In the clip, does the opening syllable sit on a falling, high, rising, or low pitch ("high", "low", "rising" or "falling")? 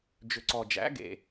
low